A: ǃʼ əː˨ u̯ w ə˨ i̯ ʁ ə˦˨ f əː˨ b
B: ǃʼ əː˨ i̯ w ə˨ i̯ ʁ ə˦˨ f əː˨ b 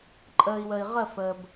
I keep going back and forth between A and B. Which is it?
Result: B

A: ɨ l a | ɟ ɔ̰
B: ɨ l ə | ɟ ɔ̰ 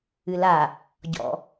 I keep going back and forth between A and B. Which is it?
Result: A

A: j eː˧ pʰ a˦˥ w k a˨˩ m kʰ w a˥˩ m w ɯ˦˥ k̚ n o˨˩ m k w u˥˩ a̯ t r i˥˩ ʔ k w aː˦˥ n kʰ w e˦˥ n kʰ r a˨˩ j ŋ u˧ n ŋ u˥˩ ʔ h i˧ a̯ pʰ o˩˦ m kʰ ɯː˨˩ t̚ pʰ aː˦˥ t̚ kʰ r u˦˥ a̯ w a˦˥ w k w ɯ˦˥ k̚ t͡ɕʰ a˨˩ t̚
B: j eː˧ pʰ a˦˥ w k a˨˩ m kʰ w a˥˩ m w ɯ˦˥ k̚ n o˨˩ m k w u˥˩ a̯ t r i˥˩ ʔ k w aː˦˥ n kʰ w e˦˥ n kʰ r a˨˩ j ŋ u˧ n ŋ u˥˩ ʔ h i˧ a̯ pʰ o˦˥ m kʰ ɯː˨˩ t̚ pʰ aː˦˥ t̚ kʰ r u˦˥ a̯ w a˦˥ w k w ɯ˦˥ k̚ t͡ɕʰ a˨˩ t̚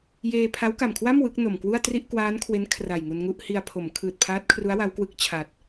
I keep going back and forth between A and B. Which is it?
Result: A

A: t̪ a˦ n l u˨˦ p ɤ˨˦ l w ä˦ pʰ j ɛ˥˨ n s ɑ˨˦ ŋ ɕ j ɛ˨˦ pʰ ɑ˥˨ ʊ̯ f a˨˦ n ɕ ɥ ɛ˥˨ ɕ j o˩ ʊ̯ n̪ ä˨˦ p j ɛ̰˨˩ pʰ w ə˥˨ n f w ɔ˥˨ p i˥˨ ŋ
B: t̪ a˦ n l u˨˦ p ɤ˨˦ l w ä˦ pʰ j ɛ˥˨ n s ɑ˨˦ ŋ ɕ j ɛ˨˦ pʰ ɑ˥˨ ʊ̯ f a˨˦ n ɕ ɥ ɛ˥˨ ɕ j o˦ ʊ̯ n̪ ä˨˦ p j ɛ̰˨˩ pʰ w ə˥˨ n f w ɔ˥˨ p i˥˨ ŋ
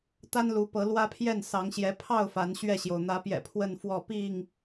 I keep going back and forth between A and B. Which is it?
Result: A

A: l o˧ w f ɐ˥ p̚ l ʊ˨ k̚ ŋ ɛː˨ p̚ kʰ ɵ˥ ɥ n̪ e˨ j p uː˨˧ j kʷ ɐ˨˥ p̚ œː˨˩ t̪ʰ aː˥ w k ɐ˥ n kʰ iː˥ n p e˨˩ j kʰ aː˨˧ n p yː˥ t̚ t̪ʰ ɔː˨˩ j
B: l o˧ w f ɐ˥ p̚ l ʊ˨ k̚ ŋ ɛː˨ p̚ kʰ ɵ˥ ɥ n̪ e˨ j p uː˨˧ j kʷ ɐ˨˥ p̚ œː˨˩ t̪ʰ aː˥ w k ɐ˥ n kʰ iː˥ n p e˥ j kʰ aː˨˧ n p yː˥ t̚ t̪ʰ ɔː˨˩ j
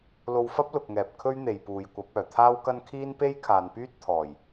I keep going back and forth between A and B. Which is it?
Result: B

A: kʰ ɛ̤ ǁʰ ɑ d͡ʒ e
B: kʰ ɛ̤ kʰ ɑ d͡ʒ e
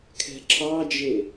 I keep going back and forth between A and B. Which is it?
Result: A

